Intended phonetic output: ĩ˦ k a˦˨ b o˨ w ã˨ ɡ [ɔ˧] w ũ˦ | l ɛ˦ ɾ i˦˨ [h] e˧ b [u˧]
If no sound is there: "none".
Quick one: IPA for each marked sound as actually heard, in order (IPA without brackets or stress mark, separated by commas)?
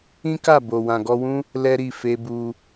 ɔ˧, f, u˧